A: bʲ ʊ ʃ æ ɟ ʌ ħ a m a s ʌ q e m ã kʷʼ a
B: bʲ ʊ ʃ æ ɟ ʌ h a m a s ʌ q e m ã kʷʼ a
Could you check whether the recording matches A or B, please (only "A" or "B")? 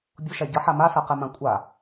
A